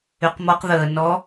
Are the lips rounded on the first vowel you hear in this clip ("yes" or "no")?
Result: yes